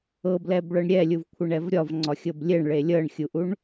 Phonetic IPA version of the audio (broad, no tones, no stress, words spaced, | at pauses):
ɤblɛbɭɤɳ ɾʲɛlʲuvkʷʰɘɳɛv ɾʲɒvŋ͡ǀɒxʲɤb lʲeɳɭe lʲɤɳxʲuʔuɳ